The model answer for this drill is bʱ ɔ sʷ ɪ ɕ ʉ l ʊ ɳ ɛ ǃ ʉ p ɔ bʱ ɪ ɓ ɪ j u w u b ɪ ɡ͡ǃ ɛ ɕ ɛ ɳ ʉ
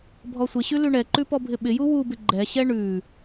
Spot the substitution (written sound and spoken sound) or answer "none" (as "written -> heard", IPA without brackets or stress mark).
ʊ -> ʉ